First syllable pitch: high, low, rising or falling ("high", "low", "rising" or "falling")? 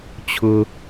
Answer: high